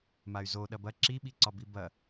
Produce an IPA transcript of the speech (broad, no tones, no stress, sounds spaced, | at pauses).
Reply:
m a y̯ z o ɗ ɐ b ɐ ǁ i ɓ i ǀ ɒ b i b ɐ